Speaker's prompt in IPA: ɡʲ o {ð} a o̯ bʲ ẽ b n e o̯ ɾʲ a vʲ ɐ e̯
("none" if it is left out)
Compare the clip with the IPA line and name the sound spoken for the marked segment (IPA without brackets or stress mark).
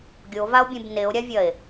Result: v